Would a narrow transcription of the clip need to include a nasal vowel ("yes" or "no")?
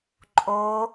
no